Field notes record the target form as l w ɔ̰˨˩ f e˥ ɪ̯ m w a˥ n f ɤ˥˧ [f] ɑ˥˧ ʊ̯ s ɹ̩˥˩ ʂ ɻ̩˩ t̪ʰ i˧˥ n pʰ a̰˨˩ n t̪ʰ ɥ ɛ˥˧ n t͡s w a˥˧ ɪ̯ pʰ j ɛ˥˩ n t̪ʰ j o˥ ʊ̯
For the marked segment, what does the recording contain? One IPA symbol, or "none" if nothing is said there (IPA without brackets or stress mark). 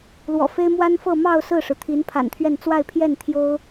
m